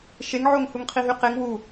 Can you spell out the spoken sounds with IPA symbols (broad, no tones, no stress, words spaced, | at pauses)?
ʃeŋʕoŋ huŋqʰiɦyqeŋ wu